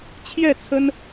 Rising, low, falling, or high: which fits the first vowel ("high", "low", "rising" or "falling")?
falling